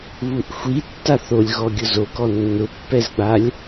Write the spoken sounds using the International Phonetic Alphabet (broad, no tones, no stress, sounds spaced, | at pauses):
β u ʔ xʷ i tː a θ o lʲ ɣ ɔ ɡʲ ʊ z o k ɔ nː ʊ pː ɛ z ɡ͡b a lʲ